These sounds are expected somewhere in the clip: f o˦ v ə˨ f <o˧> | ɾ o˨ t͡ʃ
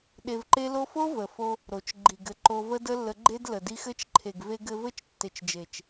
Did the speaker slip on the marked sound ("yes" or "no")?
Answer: no